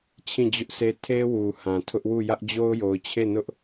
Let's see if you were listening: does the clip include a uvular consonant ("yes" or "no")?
no